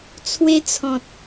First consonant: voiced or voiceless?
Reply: voiceless